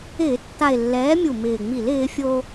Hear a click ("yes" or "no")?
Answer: no